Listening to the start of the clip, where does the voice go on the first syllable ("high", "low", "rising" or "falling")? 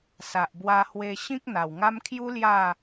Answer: low